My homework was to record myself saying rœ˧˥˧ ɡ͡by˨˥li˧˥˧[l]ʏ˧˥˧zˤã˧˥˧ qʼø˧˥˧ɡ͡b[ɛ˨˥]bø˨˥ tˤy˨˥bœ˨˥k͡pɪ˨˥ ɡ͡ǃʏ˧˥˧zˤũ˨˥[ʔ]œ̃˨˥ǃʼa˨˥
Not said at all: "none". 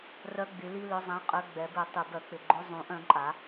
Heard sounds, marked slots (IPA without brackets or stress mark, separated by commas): l, ɛ˨˥, ʔ